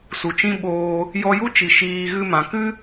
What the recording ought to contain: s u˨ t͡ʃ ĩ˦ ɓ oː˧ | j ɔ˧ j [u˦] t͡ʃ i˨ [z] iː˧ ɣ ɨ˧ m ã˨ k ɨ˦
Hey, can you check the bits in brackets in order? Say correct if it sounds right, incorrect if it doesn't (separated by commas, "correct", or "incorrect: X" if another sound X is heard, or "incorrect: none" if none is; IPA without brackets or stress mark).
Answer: correct, incorrect: ʃ